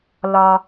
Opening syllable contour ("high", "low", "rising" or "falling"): high